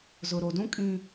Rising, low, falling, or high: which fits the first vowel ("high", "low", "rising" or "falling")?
low